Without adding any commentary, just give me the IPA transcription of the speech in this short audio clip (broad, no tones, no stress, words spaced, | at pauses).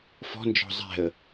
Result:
fɔ̤ nd͡ʒɔ̤zˤɛ̤ə̯